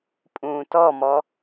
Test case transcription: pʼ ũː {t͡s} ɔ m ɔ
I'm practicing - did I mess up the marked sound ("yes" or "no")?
yes